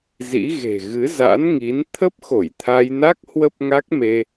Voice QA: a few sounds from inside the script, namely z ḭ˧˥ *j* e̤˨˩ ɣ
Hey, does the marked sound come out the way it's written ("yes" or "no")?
no